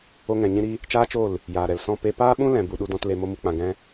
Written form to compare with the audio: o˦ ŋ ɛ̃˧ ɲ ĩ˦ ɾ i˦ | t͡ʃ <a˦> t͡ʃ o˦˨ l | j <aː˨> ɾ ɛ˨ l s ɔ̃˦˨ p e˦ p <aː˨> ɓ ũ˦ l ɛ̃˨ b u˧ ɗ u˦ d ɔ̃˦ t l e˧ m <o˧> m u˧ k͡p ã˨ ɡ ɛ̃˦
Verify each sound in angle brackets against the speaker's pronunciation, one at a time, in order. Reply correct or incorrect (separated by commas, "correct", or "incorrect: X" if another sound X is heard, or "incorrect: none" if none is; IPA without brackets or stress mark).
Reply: incorrect: aː˦, correct, incorrect: aː˦, incorrect: o˦